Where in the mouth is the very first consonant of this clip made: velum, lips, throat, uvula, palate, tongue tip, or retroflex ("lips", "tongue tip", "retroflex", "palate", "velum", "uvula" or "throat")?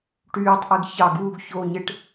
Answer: retroflex